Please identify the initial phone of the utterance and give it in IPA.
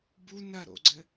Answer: b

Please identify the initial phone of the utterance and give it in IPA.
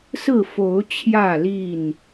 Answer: s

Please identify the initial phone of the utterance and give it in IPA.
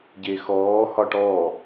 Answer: ɟ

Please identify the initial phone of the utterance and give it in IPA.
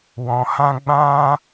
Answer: w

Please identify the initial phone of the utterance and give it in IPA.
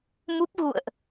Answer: m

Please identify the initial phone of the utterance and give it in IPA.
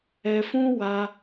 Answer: ɛ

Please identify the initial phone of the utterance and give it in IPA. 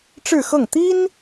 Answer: ʈ͡ʂ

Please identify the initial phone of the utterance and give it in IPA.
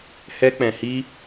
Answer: h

